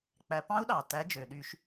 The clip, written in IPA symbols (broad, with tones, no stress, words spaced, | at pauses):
k͡pæ˨˦pɑ̃˦˥u̯ɗɑ˩tæ˨˦ d͡ʒø˩ɗy˧˩˧ʃ